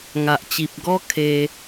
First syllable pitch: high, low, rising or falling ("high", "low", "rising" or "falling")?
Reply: low